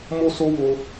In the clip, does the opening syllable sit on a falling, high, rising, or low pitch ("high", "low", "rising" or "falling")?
high